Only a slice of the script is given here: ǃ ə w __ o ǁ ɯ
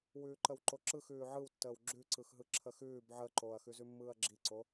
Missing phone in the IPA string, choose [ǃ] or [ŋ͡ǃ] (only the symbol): ǃ